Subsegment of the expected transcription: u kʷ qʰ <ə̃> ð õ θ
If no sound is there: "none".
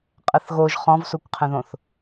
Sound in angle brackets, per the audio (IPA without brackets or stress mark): ə̃